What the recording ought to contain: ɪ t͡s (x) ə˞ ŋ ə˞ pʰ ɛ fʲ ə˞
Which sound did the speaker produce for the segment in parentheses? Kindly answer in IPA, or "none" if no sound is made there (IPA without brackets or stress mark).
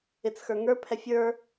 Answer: x